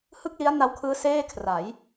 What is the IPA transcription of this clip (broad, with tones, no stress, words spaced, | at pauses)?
hɯ˥˩k̚li˦˥a̯ na˦˥wkʰɯː˦˥ seː˥˩kʰra˩˦j